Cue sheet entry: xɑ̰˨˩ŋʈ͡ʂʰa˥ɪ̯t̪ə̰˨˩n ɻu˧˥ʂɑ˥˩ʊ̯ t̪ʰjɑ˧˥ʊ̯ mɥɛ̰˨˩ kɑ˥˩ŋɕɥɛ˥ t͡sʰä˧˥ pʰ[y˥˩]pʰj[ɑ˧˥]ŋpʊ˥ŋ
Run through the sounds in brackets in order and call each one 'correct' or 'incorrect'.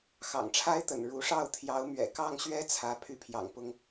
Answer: correct, incorrect

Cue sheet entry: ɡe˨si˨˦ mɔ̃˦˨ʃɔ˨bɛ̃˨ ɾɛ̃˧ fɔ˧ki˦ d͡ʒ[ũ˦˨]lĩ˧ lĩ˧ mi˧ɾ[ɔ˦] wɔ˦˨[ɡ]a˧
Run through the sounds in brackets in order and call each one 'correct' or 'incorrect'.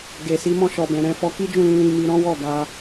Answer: correct, incorrect, correct

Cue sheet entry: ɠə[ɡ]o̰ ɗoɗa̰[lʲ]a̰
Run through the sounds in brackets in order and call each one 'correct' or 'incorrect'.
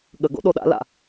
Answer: correct, incorrect

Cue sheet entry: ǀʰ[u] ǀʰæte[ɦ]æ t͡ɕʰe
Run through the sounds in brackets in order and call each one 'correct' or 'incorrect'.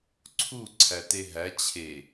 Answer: correct, correct

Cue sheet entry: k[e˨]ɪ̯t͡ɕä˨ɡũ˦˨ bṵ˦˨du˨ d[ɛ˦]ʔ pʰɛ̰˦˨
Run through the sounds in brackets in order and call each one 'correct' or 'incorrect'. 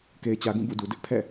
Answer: correct, incorrect

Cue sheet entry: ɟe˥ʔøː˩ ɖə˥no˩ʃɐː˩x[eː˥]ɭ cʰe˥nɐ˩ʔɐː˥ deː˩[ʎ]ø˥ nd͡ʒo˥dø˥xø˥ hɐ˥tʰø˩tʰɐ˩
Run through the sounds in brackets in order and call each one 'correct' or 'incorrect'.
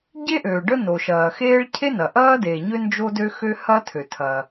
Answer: correct, incorrect

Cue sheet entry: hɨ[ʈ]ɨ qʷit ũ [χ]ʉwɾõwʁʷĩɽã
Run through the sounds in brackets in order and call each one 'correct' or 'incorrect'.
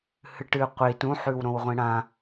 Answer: correct, incorrect

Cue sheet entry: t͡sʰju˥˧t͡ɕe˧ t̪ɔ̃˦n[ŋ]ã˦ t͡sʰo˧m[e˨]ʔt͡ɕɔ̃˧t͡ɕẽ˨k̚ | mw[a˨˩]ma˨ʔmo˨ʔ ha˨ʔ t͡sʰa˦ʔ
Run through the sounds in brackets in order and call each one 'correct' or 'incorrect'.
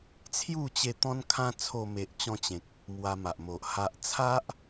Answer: incorrect, correct, incorrect

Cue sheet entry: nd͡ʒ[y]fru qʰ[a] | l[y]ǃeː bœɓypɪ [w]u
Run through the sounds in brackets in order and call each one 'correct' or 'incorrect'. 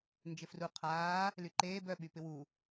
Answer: incorrect, incorrect, correct, correct

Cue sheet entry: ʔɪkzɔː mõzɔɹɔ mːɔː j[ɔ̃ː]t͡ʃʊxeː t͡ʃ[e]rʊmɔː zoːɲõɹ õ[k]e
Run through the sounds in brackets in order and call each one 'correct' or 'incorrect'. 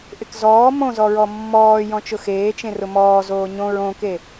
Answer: incorrect, incorrect, correct

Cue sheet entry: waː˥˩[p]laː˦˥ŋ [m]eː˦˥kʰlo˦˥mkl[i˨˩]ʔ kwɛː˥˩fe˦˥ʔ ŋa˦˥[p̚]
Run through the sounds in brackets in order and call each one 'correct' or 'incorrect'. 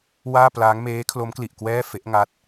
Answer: correct, correct, correct, incorrect

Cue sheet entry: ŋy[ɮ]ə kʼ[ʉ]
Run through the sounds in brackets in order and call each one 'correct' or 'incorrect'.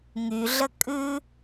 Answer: correct, correct

